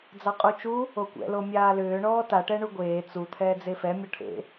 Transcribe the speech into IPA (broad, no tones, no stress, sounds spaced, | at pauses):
d͡z ɑ qʼ u t͡ʃ u | o kʷ ɛ̰ l o mʲ aː l ʏː ɳ ɔː t a ʈ ɛ ɳ u ɡʷ eː t͡s u t̪ʰ ɛː d͡z e f ɛ mʲ ɔ ʈʰ ḛ